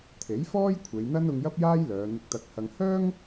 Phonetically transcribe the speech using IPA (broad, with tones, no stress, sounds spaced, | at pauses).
t̪ʰ e˨˥ j f ɔː˥ j kʷʰ e˨˧ j n̪ ɐ˥ n ʊ˧ ŋ j ɐ˥ p̚ j aː˥ j l œː˨˧ n̪ ɪ˧ k̚ t̪ ɐ˧ k̚ h ɐ˧ ŋ h œː˥ ŋ